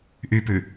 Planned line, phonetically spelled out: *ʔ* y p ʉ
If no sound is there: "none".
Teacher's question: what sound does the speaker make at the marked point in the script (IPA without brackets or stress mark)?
ʔ